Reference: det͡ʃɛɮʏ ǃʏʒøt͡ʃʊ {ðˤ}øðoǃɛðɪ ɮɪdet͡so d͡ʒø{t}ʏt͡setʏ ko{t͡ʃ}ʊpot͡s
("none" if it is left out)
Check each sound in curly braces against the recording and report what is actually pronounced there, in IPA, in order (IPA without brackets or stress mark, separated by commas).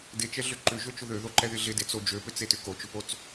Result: ð, p, t͡ʃ